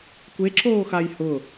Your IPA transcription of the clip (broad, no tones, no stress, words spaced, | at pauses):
kʷeǁoːxaj hʊ